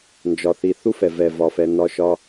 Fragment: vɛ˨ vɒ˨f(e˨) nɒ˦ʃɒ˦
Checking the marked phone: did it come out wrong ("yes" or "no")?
yes